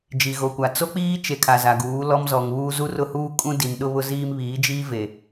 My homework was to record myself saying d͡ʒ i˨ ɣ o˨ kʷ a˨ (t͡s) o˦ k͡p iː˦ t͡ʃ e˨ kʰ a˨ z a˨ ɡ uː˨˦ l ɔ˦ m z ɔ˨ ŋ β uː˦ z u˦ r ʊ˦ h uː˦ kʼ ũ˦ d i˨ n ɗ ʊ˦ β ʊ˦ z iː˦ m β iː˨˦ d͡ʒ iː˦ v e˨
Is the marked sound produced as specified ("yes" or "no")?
yes